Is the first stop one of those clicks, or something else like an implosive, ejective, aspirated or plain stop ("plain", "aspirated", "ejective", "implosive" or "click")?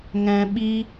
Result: implosive